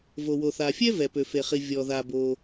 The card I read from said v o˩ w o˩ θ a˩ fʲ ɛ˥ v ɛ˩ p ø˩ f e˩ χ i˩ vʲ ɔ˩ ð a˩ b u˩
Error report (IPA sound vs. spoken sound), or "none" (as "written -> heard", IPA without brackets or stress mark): u˩ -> o˩